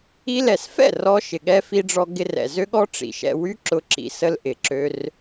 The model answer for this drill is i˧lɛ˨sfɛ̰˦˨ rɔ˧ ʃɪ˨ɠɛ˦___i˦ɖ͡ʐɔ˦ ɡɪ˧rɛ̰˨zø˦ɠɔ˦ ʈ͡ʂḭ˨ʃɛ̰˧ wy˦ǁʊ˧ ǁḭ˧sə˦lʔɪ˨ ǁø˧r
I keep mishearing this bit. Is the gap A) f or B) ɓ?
A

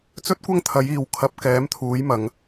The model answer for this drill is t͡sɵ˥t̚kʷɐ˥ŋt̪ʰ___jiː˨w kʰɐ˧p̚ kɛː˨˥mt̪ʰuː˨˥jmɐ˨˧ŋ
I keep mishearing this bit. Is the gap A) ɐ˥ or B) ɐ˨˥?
B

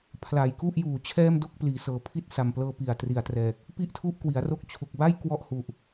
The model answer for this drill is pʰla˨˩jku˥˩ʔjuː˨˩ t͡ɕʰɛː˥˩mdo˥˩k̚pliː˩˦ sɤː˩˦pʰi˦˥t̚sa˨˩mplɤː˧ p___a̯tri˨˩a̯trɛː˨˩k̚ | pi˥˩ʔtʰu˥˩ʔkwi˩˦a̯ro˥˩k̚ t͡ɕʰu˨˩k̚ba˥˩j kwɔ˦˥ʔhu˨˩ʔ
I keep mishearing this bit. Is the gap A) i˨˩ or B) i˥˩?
A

